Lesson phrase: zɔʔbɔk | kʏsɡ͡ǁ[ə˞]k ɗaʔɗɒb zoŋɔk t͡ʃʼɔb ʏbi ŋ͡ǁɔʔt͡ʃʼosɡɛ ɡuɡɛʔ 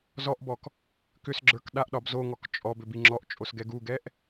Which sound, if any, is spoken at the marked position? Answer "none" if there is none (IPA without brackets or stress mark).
ə˞